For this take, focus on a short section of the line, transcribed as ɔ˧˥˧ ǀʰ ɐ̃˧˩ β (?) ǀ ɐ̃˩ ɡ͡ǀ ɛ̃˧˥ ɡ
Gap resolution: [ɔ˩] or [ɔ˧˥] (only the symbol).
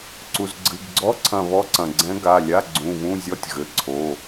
ɔ˧˥